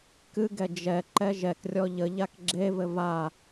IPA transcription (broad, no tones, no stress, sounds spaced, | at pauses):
k ɨ ɡ ɛ d͡ʒ ɛ ǃ ɛ ʒ ɛ k rʲ ɔ ʎ ə ʎ a k ɡ͡ǁ e v ɘ v a